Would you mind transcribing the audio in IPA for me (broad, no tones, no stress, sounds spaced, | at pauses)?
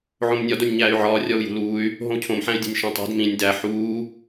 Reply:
ʕ õ m nʲ ɒ d o nʲ ɲ æː y̯ ʕ ɒː rʲ ɒ u̯ j ṳ l uː y̯ | ɦ õ u̯ cʰ õ m ħ æ̃ y̯ dʲ æ̤ nʲ ʃ ũ tˤ e̤ d m ĩ nʲ d æ ħ uː